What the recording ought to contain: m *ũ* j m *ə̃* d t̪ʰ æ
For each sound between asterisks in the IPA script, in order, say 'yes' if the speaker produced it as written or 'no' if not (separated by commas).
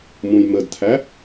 yes, no